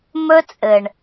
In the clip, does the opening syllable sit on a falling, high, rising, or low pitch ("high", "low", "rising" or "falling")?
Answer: high